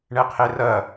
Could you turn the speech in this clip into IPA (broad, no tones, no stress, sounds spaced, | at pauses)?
ɳ ɛ qʰ e r ɐ